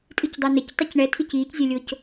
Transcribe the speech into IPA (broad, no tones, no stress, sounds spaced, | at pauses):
tʼ ɨ c dˤ o n ɘ c tˤ ɨ c ɳ ɛ tʰ i c iː c zʲ ɛ lʲ o c